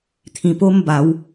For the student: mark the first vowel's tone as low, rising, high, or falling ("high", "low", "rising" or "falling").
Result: falling